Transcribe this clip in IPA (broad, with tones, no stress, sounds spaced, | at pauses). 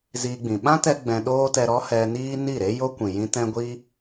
z iː˧ ɡ͡b ĩ˨ ɓ ã˦ t ɛ˧ ɡ͡b ɛ̃˧ ɗ oː˦ t ɛ˧ ɾ ɔ˦ h ɛ˧ n iː˦ n i˦˨ ɾ e˦ j o˦ kʷ ĩ˨ j ĩ˧ t ɛ̃˦ ɡʷ i˦